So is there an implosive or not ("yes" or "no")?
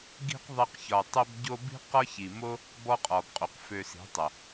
no